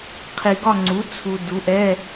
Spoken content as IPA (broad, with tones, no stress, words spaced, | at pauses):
qʰi˨ɡɒ˦˨ŋ͡ǀu˩˥ t͡sʰu˨ du˩˥ʔɛ˧˥˧